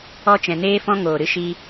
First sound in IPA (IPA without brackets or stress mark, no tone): ɔ